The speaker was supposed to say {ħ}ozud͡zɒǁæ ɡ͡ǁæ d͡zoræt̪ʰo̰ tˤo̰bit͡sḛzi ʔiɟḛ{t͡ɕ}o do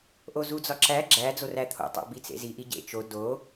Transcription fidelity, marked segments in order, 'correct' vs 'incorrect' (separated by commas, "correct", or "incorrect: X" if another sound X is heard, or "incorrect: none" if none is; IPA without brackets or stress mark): incorrect: ʔ, incorrect: t͡ʃ